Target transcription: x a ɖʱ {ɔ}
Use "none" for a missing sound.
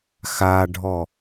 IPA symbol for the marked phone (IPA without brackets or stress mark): ɔ